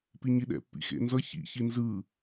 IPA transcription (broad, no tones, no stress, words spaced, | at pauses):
piɲiɗɛ̰pːḭ xḛnzʌ çḭçi nzɯ